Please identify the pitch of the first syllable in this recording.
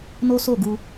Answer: high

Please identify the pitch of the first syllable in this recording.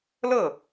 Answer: falling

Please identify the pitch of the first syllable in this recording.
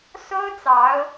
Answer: high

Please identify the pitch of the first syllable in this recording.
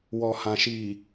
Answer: low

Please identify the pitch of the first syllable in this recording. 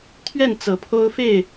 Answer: falling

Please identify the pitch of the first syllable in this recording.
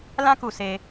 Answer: high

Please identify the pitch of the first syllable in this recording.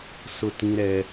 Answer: high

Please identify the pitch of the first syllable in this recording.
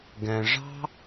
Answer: low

